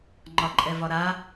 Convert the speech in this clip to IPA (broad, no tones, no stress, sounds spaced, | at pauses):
ŋ͡ǃ ɒ ǃʼ ɛ v ɒ ɾ a